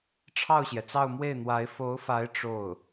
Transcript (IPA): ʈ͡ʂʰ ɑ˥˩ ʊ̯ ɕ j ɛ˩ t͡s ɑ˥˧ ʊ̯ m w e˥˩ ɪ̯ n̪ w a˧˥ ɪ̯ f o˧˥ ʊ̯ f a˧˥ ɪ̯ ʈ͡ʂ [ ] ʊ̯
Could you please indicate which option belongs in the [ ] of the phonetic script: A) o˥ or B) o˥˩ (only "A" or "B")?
B